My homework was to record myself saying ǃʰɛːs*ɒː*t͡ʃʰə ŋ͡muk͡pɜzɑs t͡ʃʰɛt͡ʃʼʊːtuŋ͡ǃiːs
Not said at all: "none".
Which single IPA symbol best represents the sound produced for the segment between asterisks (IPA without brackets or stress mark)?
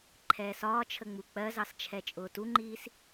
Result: ɒː